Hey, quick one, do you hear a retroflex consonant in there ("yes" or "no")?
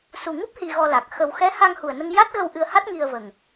no